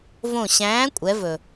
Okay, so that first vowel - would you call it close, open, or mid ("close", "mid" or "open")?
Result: mid